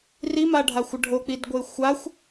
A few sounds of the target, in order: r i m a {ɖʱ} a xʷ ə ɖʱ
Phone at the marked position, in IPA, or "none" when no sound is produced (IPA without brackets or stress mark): ɖʱ